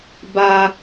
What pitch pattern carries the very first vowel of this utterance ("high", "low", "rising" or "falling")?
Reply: high